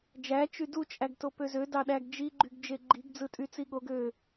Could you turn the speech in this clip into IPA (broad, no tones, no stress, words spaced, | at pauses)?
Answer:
d͡ʒæ t͡ʃydu t͡ʃʼæɡtopøzø dɑɗæɡd͡ʒi ɡ͡ǃyɡd͡ʒeɡ͡ǃiɡ d͡zɯtʼyt͡siɠoɡ ø